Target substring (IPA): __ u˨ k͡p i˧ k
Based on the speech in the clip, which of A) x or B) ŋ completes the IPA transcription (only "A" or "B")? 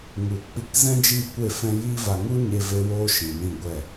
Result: B